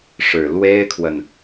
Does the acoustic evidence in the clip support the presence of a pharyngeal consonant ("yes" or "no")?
no